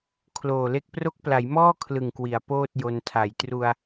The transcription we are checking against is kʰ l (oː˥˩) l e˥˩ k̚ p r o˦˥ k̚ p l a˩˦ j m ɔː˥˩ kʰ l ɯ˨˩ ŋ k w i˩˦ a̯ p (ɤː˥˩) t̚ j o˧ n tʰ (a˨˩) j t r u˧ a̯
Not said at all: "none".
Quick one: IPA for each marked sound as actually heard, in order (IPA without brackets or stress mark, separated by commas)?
oː˨˩, oː˥˩, a˨˩